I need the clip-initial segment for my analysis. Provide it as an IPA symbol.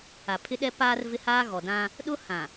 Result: a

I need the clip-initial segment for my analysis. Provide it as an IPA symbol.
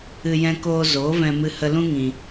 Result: ɨ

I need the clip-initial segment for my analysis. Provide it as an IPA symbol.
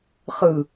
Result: χ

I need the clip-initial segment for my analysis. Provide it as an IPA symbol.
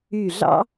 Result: y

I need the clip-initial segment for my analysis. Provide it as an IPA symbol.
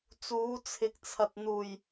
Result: t͡s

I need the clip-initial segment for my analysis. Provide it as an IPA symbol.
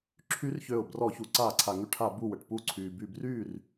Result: ǁʰ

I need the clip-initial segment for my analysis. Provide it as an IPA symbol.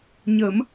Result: ɲ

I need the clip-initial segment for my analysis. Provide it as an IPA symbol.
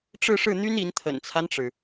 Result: ʈ͡ʂ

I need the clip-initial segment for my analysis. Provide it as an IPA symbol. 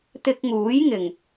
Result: t̪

